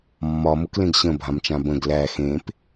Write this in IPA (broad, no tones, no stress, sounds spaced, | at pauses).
mː ɒ m ʊ k l ẽ ɡ ɕ ə̃ bʱ ã m t͡ʃ ã b ə̃ ɡ l æ x ẽ p